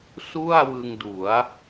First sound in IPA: s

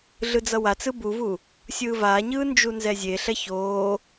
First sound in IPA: ɮ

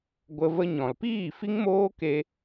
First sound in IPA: ɡʷ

